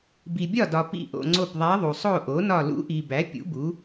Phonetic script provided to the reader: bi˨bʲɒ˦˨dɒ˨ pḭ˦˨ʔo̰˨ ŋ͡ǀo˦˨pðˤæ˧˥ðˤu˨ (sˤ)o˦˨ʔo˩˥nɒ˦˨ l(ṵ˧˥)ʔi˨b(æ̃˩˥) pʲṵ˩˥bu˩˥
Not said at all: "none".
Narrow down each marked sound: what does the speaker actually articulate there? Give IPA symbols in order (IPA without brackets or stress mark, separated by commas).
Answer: sˤ, ṵ˧˥, æ˩˥